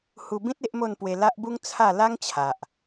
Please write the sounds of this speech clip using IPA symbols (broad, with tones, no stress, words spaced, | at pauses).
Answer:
hu˧bĩ˦t̚ e˦ʔmo˥˧npwe˧ la˦ʔbu˦ŋ t͡sʰa˥˧ la˦ŋt͡ɕʰa˨ʔ